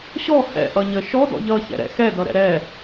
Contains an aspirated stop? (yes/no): no